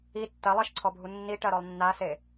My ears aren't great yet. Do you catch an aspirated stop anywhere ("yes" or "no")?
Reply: yes